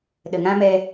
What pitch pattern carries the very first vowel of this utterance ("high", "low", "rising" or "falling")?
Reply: low